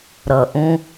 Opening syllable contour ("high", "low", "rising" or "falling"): low